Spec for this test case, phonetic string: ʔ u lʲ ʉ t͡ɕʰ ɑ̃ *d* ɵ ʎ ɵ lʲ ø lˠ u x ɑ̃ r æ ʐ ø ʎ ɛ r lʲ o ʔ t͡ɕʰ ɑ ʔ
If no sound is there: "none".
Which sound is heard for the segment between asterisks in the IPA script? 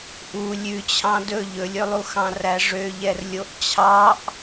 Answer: d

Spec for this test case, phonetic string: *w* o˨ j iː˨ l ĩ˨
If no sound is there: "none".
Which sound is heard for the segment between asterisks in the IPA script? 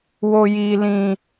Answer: w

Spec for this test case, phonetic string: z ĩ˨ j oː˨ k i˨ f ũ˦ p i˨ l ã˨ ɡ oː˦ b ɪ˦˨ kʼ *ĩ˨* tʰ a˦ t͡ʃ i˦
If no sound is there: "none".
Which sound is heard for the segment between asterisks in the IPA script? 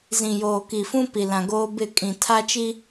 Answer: ĩ˨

